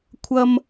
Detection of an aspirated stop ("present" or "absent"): present